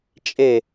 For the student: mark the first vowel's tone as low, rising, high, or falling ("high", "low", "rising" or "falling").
falling